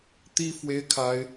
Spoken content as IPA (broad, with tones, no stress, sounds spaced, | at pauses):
t̪ i˥ f w e˥ ɪ̯ kʰ a˥ ɪ̯